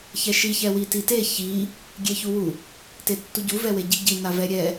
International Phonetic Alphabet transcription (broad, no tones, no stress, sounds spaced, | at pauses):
ç ɛ ʃ i ç ɛ w i t i t e ç i | ɡʲ e ç u w u | t e tː u ɟ u v ɛ w e ɟ i ɟ i n a v ɛ ɾʲ ɛ